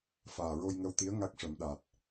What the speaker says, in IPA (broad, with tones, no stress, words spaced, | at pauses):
faː˨˩ɹo˧jŋə˧wt̪i˧˥ə̯ ŋa˦˥k̚ʂə˨˩˦mɗa˨˩t̚